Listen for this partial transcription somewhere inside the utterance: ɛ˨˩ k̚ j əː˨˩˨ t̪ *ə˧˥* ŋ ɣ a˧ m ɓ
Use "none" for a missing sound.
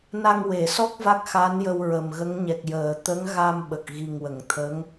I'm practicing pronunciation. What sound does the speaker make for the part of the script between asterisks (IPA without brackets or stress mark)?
ə˧˥